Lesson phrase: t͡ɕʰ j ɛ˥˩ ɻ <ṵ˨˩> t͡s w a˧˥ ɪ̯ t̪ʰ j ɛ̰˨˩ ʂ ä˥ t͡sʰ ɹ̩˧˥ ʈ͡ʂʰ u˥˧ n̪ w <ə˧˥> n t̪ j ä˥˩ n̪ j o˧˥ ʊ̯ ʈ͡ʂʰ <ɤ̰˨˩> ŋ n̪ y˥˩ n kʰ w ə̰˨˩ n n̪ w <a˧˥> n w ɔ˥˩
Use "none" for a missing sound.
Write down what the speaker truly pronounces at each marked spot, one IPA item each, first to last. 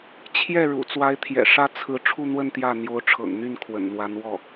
ṵ˨˩, ə˥˧, ɤ̰˨˩, a˧˥

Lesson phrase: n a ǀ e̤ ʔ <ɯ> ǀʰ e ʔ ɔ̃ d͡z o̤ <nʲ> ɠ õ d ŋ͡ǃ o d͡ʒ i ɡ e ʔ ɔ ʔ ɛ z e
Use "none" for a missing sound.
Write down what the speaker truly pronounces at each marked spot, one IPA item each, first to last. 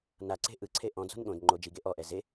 ɯ, n

